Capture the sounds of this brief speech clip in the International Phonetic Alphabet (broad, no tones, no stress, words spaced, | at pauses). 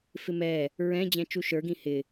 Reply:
fɪmɛ | ɹɛ̃ d͡ʑɛ̃t͡ʃuʃə˞ɡĩ hɪ